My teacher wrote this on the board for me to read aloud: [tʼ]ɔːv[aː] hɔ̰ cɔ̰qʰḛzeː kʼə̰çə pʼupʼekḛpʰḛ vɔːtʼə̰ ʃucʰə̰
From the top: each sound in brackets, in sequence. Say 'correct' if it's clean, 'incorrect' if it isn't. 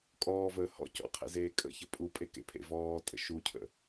incorrect: kʼ, incorrect: əː

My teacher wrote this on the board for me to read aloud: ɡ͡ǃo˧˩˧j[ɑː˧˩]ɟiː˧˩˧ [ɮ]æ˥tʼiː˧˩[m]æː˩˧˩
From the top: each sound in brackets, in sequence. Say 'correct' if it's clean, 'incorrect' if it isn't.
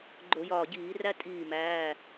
incorrect: ɒː˧˩, incorrect: r, correct

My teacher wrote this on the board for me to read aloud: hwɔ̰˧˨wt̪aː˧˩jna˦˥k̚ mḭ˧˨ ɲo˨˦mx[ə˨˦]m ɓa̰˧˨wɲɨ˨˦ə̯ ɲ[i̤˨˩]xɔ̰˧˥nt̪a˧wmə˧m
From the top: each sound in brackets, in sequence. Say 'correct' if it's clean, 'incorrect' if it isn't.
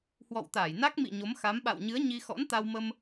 incorrect: a˨˦, incorrect: i˧

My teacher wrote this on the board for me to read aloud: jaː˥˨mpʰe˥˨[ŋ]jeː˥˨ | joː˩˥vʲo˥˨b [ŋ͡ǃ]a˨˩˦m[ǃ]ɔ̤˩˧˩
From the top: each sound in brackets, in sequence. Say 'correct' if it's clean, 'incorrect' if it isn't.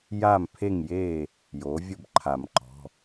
correct, incorrect: ǃʰ, correct

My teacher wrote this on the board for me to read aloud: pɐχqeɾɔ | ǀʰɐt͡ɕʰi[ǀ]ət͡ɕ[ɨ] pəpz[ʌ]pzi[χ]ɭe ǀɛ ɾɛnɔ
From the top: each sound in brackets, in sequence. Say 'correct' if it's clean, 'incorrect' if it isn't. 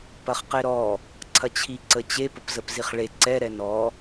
correct, incorrect: e, incorrect: ə, correct

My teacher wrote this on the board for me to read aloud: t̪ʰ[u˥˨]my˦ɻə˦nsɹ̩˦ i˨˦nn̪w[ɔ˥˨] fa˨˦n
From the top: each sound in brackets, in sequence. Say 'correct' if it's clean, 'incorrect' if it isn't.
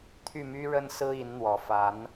incorrect: y˥˨, incorrect: ɔ˨˩

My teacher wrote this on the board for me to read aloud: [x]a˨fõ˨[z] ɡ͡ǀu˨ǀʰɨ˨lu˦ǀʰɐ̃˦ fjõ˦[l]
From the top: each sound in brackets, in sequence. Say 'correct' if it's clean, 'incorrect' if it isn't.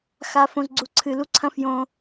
correct, correct, incorrect: none

